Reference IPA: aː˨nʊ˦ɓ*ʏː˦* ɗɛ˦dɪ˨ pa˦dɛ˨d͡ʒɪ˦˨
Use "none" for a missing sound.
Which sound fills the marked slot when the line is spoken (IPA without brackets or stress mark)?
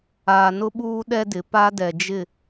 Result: uː˦